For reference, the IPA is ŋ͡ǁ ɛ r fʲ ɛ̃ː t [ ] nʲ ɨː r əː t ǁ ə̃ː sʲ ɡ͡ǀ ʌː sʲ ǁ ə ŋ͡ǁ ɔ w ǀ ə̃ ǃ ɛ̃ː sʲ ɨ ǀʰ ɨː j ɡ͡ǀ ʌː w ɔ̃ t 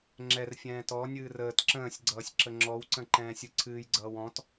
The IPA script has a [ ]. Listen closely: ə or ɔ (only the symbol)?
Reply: ɔ